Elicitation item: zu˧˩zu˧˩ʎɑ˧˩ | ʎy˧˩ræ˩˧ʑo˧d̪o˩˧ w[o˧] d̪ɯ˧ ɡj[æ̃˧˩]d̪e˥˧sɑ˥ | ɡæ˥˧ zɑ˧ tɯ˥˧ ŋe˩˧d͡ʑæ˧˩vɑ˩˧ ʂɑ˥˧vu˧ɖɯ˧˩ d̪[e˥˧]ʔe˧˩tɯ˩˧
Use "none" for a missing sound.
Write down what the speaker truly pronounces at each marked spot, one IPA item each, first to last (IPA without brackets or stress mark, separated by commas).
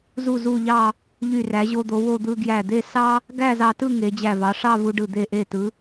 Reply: o˥˧, æ˧˩, e˧˩